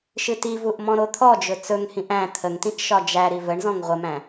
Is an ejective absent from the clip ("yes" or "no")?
yes